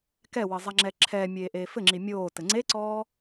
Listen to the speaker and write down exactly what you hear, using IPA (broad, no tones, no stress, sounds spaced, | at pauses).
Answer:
k ɛ w ɘ zˤ a ŋ͡ǁ ɛ ǁʰ ɛː mʲ eː ʔ eː f ɘ ŋ͡ǁ i mʲ oː t ɘ ŋ͡ǀ e ǀ ɔː